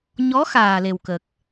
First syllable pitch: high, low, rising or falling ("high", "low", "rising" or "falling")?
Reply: rising